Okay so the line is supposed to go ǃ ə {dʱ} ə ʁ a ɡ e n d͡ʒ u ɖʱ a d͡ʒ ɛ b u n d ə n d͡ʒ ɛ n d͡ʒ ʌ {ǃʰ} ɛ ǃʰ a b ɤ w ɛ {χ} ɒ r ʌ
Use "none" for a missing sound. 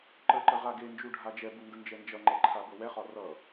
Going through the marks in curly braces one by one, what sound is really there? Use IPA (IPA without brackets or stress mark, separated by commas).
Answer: ǃ, ŋ͡ǃ, χ